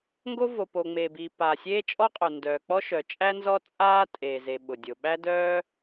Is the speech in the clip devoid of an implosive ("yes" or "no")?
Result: no